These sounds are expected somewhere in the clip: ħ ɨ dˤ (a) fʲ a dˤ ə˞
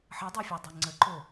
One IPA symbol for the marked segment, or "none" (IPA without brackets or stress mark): a